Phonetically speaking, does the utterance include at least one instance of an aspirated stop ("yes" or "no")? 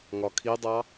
yes